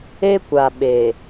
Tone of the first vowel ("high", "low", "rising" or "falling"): high